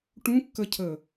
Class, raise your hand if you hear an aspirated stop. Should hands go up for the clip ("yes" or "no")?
yes